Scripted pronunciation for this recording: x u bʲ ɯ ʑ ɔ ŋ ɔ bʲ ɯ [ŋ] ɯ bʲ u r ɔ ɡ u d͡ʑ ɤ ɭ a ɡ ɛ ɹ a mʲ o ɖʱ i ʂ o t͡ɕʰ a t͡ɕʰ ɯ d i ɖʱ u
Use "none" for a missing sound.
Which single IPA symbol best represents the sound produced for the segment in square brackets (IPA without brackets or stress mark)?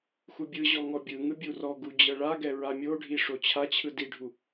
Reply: ŋ